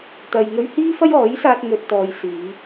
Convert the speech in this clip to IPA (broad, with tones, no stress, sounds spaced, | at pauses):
t̪ ɐ˨ j ŋ ɵ˧ ɥ h iː˥ f ɐ˥ j ɔː˨˥ j s aː˧ t̚ ŋ ɵ˨ t̚ t̪ ɔː˨ j s iː˨˧